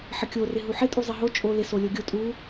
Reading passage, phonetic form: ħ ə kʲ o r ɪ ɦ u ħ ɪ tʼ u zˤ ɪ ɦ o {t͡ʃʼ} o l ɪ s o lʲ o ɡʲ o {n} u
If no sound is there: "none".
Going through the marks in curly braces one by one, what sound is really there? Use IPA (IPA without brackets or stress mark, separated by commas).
t͡ʃʼ, tʼ